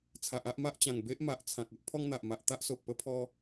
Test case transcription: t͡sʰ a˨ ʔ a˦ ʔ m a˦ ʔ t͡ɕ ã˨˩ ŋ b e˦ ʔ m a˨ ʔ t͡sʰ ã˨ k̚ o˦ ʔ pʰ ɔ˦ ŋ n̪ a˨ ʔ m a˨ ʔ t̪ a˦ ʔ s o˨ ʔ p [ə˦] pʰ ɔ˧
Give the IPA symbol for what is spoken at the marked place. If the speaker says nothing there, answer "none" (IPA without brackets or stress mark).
ə˧